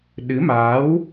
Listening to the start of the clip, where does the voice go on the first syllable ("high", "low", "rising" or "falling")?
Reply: rising